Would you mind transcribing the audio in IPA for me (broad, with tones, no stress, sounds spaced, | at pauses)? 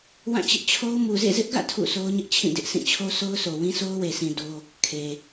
w ã˦˨ t͡ɕ ɪ˦ ʔ t͡ɕʰ o˦ ʊ̯ m u˨ z ḛ˦˨ z ɪ˦ ʔ ɡ ä̰˦˨ tʰ ṵ˦˨ sʰ o˦ ʊ̯ ɲ ɪ˦ ʔ t͡ɕʰ ĩ˦˨ d ɪ˦ ʔ s ĩ˦˨ t͡ɕʰ o˦ s o˦ ʊ̯ s o˨ w ĩ˦ s o˦ ʊ̯ w e˨ sʰ ĩ˨ d o˦ | kʰ e˨